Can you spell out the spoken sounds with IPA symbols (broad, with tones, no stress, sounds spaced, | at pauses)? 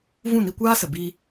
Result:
v ũ˦˨ n i˧ kʷ aː˦ s ə˨ b i˧